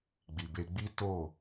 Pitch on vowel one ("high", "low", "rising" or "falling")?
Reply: low